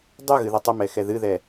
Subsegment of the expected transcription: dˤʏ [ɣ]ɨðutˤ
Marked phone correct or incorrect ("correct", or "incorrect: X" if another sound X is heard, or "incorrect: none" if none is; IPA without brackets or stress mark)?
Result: correct